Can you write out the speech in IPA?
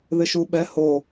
ð ɪ ʃ u ɓ ɛ h o

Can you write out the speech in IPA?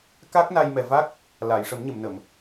k a˦˥ k̚ n a˧ j m ɛ˨˩ v a˦˥ k̚ | l a˨˩˨ j ʂ ə˨˩˦ m ɲ ə˨˩˨ m n ə˨˩˨ m

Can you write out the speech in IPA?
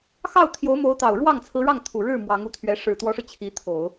x ɑ˥˩ ʊ̯ t̪ʰ j o˧˥ ʊ̯ m o˧˥ ʊ̯ t̪ ɑ˨˩ ʊ̯ ɻ w ɑ˥˩ ŋ t͡sʰ ɹ̩˧˥ ɻ ɑ˥˩ ŋ t̪ʰ u˨˩ ɻ ɻ̩˥˩ m w ɑ˧˥ ŋ u˧˥ t̪ʰ ɥ ɛ˧˥ ʂ ɻ̩˨˩ t̪ w ɔ˧˥ ʂ ɻ̩˧ t͡ɕʰ i˧˥ t̪ʰ o˨˩˦ ʊ̯

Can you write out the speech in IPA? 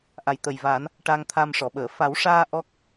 ʔ a˨˩ j t̪ ə˨˩ j v aː˨˩˦ n | ʈ a˧ ŋ t̪ʰ a˧ m ʂ ɔ˨˩˨ ɓ əː˨˩˨ f a˨˩˦ w ʂ aː˧ ʔ ɔ˦˥ k̚

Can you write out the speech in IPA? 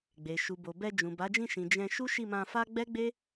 ɡ͡b e˨ ʃ u˨ b o˨ b ɛ˧ d͡ʒ ũ˨ b a˨˦ d͡ʒ ĩ˦˨ ʃ ĩ˨ d͡ʒ ɛ̃˧ ʃ u˦ ʃ i˦˨ m ã˧ f a˦ ɡ͡b ɛ˦ ɡ͡b e˦

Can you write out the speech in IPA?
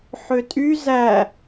ħ ø tʼ y z æ

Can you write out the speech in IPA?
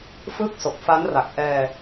f ɯː˥˩ k̚ s o˨˩ k̚ f a˦˥ n r a˨˩ k̚ ʔ ɛː˧

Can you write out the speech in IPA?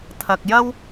t̪ʰ ɐ˨ k̚ j ɐ˥ w

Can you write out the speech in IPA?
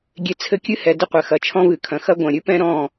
ɡʲ e˨ t͡sʰ ɘ˦ kʲ ɨ˦ h ɛ˨ d ɘ˦ qʷ ɘ˨ x ɐ˨˦ t͡ʃʰ ɔ̃˦ v ɨ˨ kʰ ɐ̃˨ x ɐ˦ ɡʷ ɐ̃˨ ɾʲ ɨ˦ p ɛ̃˦ ɾ ɔ̃˦˨

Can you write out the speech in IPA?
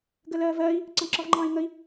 ɡ ə l ɜː v ɜː i̯ | ǀ ɑ̃ ǁ ɒ v ŋ͡ǃ ɑ̃ː i̯ ŋ ə i̯

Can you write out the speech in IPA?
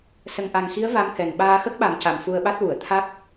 s ə˨˩ ŋ ʔ a˨˩ ŋ x i˧˥ ə̯ v a˧ m k ɛ˨˩ n ɓ aː˧ x ə˦˥ k̚ ɓ a˨˩˦ m c a˨˩ m f u˧ ə̯ ɓ a˦˥ t̚ w u˨˩˨ ə̯ t̪ʰ a˦˥ k̚

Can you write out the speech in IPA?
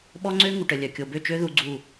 ɓ ɔ˦ ŋ͡ǀ ø˦ ŋ u˨ ʈ ə˨ lʲ œ˨ kʲ o˨ b ø˦˨ t͡ʃ ø˦ ð u˦ ɡ͡ǀ u˦˨

